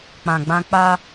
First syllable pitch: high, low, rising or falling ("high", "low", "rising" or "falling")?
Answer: low